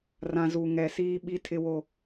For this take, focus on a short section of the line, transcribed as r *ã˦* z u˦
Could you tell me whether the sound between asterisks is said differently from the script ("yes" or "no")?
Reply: no